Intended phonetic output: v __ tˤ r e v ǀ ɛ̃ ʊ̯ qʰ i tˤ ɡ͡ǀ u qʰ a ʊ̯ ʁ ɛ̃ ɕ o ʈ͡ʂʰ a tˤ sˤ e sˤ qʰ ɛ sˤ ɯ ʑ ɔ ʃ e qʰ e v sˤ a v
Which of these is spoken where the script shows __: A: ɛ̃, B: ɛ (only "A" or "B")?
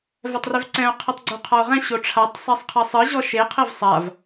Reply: B